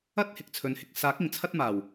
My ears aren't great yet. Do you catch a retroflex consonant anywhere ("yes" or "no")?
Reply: no